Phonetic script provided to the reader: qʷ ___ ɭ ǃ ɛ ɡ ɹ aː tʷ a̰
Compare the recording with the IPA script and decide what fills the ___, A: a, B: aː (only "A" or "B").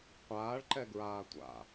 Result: B